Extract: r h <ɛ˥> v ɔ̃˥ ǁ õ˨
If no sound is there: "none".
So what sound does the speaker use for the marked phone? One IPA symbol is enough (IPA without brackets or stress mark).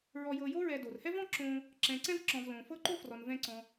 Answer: ɛ˥